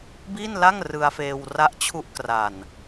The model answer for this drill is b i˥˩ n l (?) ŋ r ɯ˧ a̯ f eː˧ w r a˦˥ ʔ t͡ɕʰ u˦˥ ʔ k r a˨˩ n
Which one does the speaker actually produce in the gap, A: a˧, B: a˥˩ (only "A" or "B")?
B